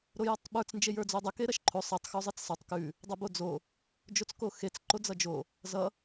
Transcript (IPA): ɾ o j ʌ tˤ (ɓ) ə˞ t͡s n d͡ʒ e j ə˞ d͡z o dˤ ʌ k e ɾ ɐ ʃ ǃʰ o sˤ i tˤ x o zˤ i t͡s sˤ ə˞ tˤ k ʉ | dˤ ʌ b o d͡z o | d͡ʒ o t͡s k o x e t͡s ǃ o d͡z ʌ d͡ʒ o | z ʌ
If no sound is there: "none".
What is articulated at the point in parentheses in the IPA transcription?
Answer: ɓ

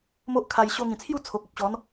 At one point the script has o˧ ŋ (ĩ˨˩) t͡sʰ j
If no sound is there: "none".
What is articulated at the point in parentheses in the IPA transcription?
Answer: ĩ˨˩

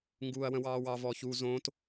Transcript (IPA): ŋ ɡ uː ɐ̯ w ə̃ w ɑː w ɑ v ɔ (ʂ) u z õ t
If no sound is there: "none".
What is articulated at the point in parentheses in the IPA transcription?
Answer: ç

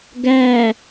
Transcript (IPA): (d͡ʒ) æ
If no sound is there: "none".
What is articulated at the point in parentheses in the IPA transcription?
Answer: ɡ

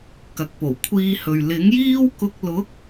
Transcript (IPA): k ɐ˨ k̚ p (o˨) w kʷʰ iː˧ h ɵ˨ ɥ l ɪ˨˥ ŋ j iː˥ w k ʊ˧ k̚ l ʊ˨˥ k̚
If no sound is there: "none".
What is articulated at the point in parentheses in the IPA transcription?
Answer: o˨˩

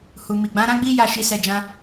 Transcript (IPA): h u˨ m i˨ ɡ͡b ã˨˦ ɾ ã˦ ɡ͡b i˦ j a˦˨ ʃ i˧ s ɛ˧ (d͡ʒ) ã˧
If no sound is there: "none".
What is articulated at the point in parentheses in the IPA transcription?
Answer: d͡ʒ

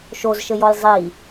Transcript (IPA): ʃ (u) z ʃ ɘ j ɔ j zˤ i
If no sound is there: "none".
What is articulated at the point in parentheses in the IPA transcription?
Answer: o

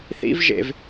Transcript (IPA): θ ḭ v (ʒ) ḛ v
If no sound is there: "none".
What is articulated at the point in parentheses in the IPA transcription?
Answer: ʒ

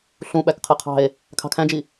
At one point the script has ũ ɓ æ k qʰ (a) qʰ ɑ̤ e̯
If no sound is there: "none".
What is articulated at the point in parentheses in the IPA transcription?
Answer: ɐ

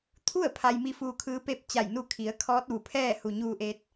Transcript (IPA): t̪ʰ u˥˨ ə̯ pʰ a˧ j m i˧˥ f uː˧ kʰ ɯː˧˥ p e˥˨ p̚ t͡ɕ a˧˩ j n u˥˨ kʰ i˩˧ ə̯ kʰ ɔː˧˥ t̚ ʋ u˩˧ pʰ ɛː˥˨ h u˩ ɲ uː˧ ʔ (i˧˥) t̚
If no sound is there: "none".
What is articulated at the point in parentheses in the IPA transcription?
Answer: e˧˥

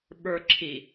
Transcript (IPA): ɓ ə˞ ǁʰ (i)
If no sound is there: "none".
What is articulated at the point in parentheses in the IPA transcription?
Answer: i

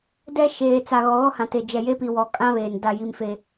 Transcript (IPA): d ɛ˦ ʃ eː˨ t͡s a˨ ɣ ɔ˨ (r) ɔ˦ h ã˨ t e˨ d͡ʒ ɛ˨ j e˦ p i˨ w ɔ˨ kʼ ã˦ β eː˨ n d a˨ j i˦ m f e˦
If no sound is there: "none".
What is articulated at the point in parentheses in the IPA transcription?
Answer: ɣ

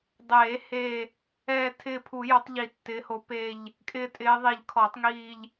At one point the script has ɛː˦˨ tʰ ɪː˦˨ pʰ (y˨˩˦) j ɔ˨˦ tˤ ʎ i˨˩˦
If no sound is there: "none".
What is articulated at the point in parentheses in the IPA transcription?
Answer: u˨˩˦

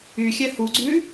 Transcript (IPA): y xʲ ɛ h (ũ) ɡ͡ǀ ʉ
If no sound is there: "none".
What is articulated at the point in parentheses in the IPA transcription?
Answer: u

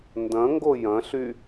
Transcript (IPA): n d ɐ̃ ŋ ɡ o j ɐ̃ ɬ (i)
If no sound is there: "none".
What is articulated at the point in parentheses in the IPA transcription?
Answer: y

